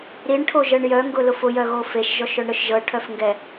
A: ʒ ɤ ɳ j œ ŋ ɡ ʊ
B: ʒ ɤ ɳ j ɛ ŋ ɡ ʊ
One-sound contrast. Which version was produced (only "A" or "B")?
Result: A